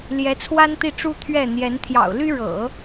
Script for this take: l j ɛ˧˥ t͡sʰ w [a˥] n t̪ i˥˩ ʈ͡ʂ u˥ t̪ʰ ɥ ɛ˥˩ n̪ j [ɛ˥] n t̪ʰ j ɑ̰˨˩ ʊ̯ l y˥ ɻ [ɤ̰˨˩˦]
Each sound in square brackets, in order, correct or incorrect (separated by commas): correct, incorrect, correct